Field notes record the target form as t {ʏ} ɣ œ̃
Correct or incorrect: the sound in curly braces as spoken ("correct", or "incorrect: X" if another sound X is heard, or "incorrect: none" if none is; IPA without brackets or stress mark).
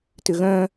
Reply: correct